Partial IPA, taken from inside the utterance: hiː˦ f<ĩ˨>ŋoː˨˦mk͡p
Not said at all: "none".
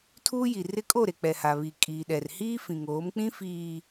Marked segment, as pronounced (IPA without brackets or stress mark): ĩ˨